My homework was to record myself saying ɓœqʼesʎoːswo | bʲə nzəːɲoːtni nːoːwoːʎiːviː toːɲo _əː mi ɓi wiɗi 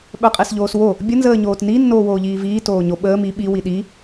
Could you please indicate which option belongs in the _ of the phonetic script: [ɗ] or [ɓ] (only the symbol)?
ɓ